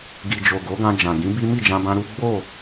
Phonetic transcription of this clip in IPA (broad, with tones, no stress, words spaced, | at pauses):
ɡi˨d͡ʒo˨ ɡo˨˦ɡã˧ d͡ʒã˨ɡĩ˨˦bi˦ mi˦˨d͡ʒã˧bã˧ ɾu˦ ɡ͡bo˦˨